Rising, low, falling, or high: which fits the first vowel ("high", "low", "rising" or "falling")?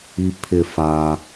low